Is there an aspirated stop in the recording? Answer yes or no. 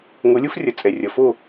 no